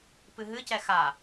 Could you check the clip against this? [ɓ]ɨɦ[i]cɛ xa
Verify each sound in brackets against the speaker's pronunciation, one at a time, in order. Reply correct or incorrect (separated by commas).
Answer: incorrect, incorrect